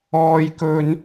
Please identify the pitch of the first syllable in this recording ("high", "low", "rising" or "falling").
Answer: high